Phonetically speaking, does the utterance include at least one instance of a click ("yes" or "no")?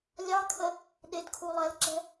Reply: yes